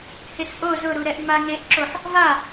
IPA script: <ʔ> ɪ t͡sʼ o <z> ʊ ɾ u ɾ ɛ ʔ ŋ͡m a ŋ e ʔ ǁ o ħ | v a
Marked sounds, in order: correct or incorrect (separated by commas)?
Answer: incorrect, correct